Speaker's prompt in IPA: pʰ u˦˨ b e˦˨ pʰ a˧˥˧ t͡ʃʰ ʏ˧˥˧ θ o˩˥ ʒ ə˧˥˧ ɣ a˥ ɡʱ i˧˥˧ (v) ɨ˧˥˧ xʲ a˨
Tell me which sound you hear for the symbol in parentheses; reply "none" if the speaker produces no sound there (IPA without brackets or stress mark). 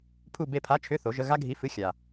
f